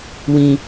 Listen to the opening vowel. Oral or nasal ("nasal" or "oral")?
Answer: nasal